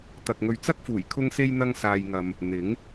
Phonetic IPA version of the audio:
t̪ ɐ˨ k̚ ŋ ɵ˨ ɥ t͡s ɐ˥ k̚ f uː˨˩ j kʰ ʊ˧ ŋ s e˧ j n̪ ɐ˧ ŋ s aː˧ j ŋ ɐ˧ m | n̪ ɪ˨˥ ŋ

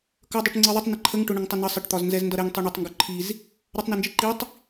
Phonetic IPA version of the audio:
k ʌ dˤ i ʈ ŋ͡ǀ i ðˤ ə tˤ n ə ǃʰ ə ŋ ʈ ʊ ɳ ə ŋ tˤ ə n ə sˤ ə ʈ t̪ ɒ z n z ɛ z n d ʌ ɾ ɛ ŋ tˤ i ɳ ə tˤ ŋ ɡ ʊ ǃʰ i z | ɾ ʌ tˤ n ɛ n d͡ʒ i ǃ i tˤ

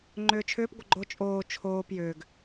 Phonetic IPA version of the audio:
ŋ͡ǃ ʏː t͡ʃʰ ʏː p ɡʷ ə ɡ͡ǃ o t͡ʃʼ oː t͡ʃʰ oː p j ʏː ɡ

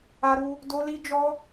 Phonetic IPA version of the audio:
a˦ ɾ u˦ | d o˦ l i˦ d͡ʒ ɔ˦

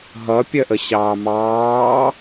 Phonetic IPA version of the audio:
ɦ ʌ pʲ ɜ ʔ ə ɕ ɑː m ɑː

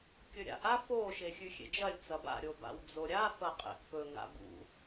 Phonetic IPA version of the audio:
kʲ ɵ ɾʲ a̰ ʔ a f o ʃ e xʲ ʉ xʲ ḛ d͡ʒ ɐ lʲ t͡s ɐ b a̰ ɾʲ o b a̰ w d͡z o ɾʲ a f ɐ qʼ ḛ ʔ f ɵ ŋ a̰ b ṵ

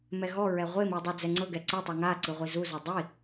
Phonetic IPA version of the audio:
m ɛ ɣ ɔ ɹ ɛ ʁʷ e m i dˤ ɛ d͡z ɛ ŋ͡ǀ ɤ ɡ ɛ ǀ ɛ tˤ u ŋ a ǀ ɯ ʁʷ i z u z ɯ dˤ i

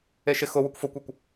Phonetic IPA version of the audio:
e ʃ ɪ x ʊ w ʊ kʷ f o kʷ e kʷ

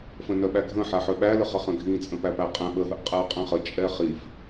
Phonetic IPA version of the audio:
f ə̃ n œ ɓ æ ɡʱ ə̃ ħ a ħ œ ɓ æ l ə χ ə χ ə̃ ɡʱ ĩ t͡sʼ ə̃ p æ p æ qʼ ɛ̃ ɓ ə ɦ ə ʔ qʼ æ qʼ ɛ̃ χ ə t͡ʃʼ ɛ χ i f

